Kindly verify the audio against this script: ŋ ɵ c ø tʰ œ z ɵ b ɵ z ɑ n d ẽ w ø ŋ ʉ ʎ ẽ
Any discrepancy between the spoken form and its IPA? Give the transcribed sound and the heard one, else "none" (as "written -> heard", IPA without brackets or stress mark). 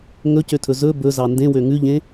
œ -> ɵ